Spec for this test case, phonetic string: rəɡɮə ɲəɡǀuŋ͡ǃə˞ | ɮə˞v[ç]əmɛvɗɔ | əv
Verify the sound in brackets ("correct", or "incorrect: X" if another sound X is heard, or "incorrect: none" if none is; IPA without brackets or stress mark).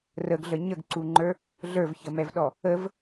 correct